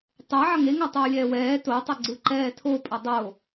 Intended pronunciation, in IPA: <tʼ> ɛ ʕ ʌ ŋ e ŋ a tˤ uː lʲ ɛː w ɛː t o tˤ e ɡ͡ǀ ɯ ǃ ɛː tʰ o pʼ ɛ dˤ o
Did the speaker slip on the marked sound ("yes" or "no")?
yes